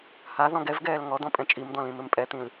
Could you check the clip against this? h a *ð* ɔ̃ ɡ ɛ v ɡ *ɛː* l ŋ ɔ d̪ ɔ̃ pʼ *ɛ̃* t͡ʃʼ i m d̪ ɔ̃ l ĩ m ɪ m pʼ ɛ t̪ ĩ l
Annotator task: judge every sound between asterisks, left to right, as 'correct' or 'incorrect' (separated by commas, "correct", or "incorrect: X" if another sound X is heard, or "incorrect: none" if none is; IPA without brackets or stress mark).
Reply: correct, correct, correct